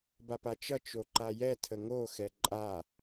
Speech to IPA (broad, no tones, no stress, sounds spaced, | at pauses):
b a p a t͡ʃ ʌ t͡ʃ o ǃ a j ɛ tʰ ə ŋ o x ɛ ǃʼ a